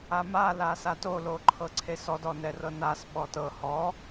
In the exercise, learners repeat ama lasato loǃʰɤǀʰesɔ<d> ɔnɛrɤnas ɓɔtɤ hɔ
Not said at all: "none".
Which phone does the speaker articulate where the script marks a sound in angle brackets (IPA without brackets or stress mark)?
d